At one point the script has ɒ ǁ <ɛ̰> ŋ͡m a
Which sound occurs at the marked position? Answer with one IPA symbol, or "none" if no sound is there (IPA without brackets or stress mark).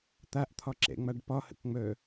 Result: ɛ̰